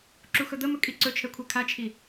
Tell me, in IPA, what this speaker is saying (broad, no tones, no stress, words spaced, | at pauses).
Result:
ǁuxɵd̪əmɵ kʼiǀɵt͡ʃʰɛ kʷʰɛkʰat͡ʃʰi